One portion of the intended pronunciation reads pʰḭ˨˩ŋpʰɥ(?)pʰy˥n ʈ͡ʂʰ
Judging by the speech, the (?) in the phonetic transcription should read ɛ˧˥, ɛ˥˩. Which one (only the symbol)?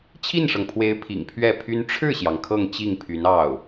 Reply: ɛ˥˩